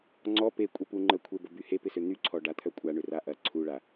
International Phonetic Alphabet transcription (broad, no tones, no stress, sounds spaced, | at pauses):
ŋ͡ǀ ɔ p e kʷʼ e p u ŋ͡ǃ ə kʷʰ e b ə b y h e p ɪ s ø n̪ y ǀʰ ɔ ɖ a t̪ʰ œ kʷʼ a ɳ ʏ r a ʔ ɐ ǀʰ u ɭ a